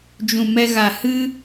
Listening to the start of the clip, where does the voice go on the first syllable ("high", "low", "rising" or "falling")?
low